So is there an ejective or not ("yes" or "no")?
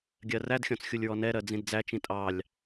yes